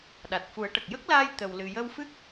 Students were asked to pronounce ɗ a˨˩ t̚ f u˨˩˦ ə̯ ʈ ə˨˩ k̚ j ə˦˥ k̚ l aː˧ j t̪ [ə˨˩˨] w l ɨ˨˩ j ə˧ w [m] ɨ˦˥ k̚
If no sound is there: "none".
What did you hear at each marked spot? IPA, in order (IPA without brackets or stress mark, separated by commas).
ə˨˩, f